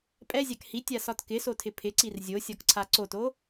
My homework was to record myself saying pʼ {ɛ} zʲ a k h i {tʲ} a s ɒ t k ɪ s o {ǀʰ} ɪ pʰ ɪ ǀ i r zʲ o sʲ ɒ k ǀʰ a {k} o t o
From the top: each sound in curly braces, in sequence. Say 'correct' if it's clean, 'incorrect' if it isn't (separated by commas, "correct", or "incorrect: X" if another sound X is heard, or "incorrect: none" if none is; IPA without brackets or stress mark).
correct, correct, incorrect: tʰ, incorrect: ǀ